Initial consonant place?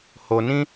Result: glottal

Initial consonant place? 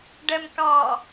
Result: retroflex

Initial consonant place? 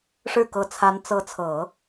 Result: retroflex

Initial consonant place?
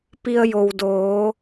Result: labial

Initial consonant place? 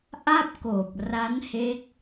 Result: glottal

